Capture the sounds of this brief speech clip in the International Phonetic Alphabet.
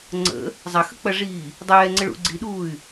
ŋ͡ǀ ə̰ | zˤ ɐ x ə k͡p ɐ ʐ iː | dˤ ɛː ŋ͡ǀ ə ɭ ṵ ɡ͡ǀ i ɗ uː y̯

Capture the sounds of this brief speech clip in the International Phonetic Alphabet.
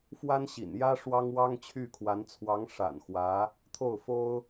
f w a˥ n ɕ ḭ˨˩ n j ä˥ ʂ w ɑ˥ ŋ w ɑ˥ ŋ t͡ɕʰ y˥˩ kʰ w a˧˥ n t͡sʰ w ɑ˧˥ ŋ ʂ a̰˨˩ n x w ä˧˥ | t̪ʰ o˥˩ ʊ̯ f o˥ ʊ̯

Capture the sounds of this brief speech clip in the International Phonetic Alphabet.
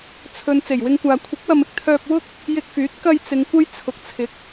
t͡sʰ ɵ˨ n t͡s e˨˩ j w ɪ˧ ŋ kʷ aː˨ kʷʰ ɪ˨˥ k̚ w ɐ˨ m ɪ˨ k̚ t̪ʰ œː˧ p̚ w ʊ˥ k̚ | j ɪ˧ k̚ f yː˨˥ t̚ k ɐ˧ j t͡s ɪ˨˧ ŋ kʷ ɐ˥ j t͡sʰ ʊ˨ k̚ t͡sʰ ɪ˨˥ k̚

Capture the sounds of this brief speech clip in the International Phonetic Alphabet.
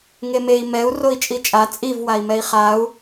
ŋ e m e i̯ m ɛ u̯ r o i̯ t͡ʃʼ i t͡ʃʼ a t͡sʼ i v w a i̯ m ɛ i̯ χ a u̯

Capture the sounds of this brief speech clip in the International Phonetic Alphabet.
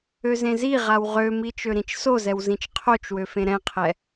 ø z ẽ z i ʁ a w ʁ ø m i t͡ʃ ø ɾ ĩ t͡ʃ s o z ɛ w z ĩ t͡ʃ qʰ o t͡ʃ w ø f ẽ ɾ ɛ̃ qʰ ɛ

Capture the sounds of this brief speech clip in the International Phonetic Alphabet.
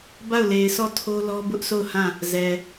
b a˦˨ ʊ̯ l e˨ ɪ̯ s ɔ˦˨ tʰ o˦ l ɔ˦ b ʊ˦ ʔ sʰ o˦˨ ʊ̯ h ã˦˨ | z ɛ˨

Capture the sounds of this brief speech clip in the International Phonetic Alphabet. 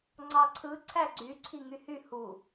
ŋ͡ǀ ɑ ǀʰ ɯ ǀʰ æ ɡ͡ǀ y ǀʰ i ŋ y h y h u

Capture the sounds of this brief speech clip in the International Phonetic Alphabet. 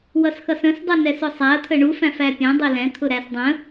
w ʌ s x ʌ s ə̃ s dˤ u n ɛ s ʊ sˤ æ ɐ̯ t̪ʰ ə ɳ u f æ̃ f æ pʲ ɛ̃ dˤ i l ɛ̃ t̪ʰ ʊ ɾ æ s dˤ ə̃

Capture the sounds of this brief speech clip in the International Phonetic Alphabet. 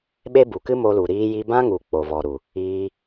ɓ e˦ b u˨ k ɨ˦ m o˧ l u˨ ɾ iː˧ j i˧ b ã˦ ŋ u˨ k͡p o˨ v ɔ˨ ɾ u˨ | iː˧

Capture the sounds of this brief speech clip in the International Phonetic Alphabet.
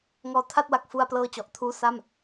ŋ ɔː˧ tʰ a˥˩ t̚ w a˨˩ k̚ f u˧ a̯ p l ɤː˥˩ t͡ɕ ɔ˨˩ ʔ tʰ uː˥˩ s a˥˩ m

